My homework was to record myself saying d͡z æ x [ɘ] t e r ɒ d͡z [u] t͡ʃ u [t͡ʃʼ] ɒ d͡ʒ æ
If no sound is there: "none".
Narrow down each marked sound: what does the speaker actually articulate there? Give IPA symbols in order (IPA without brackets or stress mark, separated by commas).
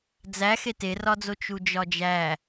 e, o, d͡ʒ